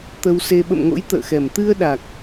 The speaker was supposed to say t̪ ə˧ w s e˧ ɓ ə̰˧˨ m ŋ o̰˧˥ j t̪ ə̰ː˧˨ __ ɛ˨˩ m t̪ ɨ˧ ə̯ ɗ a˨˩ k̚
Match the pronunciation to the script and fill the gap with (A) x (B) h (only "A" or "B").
A